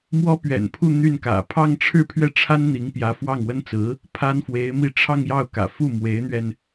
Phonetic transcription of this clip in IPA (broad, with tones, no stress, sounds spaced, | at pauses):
m w ɔ˥ p ɥ ɛ̰˨˩ n pʰ u˥˧ n̪ y˥˩ n k ä̰˨˩ pʰ ɑ˥˧ ŋ ʈ͡ʂʰ ɻ̩˥˧ pʰ ɥ ɛ˥˩ ʈ͡ʂʰ a˥ n n̪ i˧˥ ŋ p j ä˧˥ f w ɑ˥˩ ŋ w ə˥ n t͡s ɹ̩˧˥ | pʰ a˥ n f w e˧˥ ɪ̯ m i˥˧ ʈ͡ʂʰ ɑ˥˧ ŋ j ɑ˥˩ ʊ̯ k ä̰˨˩ f u˥˩ m w e˧˥ ɪ̯ n̪ ɥ ɛ˧ n